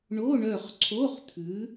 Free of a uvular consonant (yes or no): no